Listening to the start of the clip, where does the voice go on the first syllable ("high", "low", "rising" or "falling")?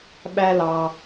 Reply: high